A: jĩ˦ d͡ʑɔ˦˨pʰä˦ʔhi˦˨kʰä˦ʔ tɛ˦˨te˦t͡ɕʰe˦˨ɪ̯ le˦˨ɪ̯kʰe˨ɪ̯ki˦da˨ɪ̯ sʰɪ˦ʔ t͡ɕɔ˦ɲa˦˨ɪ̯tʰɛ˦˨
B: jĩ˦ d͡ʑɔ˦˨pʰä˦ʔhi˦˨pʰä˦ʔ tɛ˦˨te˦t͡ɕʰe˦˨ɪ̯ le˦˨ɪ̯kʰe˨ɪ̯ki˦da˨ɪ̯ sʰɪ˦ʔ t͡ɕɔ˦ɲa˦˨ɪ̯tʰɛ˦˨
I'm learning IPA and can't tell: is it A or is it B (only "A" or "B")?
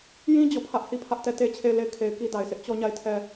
B